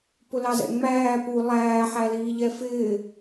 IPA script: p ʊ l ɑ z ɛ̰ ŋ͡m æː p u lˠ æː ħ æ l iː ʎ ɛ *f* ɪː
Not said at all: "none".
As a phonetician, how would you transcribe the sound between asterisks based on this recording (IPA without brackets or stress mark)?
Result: f